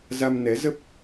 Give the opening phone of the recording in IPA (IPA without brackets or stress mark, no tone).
z